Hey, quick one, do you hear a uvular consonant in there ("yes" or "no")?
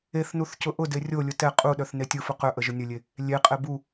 yes